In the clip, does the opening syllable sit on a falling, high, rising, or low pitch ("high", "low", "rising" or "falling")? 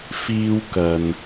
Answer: high